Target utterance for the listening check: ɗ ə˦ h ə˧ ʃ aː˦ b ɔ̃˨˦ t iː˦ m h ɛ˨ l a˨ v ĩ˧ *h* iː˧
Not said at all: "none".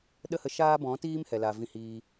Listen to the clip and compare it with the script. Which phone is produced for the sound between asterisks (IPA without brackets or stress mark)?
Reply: h